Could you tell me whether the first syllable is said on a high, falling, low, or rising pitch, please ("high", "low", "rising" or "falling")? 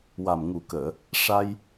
low